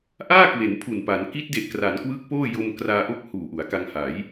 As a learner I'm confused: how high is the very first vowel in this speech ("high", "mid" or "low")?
low